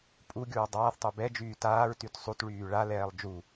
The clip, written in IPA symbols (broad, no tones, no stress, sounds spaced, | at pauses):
pʼ u ɡʲ uː dˤ aː θ tˤ u b ɛ d͡ʒ yː t aː ɹ t y t sˤ u t ɭ yː ɭ a l ɛː lˠ d͡ʒ u